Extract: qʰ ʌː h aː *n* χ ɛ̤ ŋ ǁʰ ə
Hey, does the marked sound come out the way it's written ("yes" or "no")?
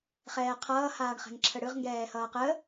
no